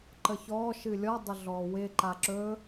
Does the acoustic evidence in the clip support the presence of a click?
yes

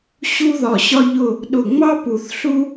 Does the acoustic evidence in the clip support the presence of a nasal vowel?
no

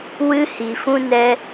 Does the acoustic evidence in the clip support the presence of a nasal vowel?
yes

